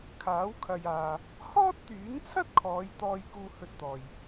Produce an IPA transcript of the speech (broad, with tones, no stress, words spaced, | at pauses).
kʰaː˨˥w kʰɐ˨jaː˨ | hɔː˥t̚t̪yː˨˥nt͡sʰɐ˥t̚kʰɔː˨˧j t̪ɔː˥jkuː˥hɵ˥t̚t̪ɔː˧j